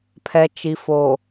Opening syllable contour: low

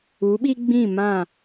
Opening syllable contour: rising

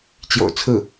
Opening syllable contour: low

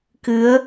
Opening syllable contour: rising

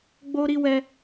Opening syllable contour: high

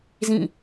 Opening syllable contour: falling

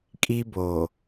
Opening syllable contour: high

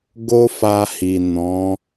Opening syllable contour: high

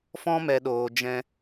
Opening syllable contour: high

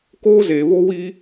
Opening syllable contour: high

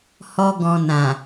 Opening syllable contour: high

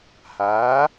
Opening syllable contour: rising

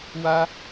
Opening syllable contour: high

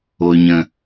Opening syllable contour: low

